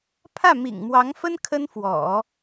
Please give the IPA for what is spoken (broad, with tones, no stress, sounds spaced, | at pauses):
pʰ ä˥˩ m ḭ˨˩ ŋ m w ɑ˧˥ ŋ f ə˥ n kʰ ə˥ n f w ɔ̰˨˩˦